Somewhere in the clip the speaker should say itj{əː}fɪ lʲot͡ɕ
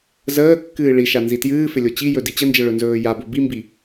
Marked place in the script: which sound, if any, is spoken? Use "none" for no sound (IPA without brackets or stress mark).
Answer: ɨː